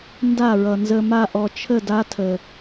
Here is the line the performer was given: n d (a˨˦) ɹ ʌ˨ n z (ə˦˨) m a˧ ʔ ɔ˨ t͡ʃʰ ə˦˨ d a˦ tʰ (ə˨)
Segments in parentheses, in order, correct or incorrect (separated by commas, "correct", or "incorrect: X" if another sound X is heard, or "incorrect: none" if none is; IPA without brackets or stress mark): incorrect: a˦˨, incorrect: ə˧, correct